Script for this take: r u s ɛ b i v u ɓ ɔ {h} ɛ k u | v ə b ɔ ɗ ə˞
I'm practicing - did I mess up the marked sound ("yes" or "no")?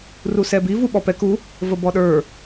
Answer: yes